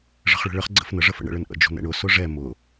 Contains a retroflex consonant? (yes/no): yes